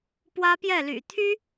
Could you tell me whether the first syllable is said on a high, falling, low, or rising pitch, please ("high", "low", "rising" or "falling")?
high